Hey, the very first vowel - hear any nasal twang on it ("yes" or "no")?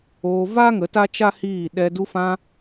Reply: no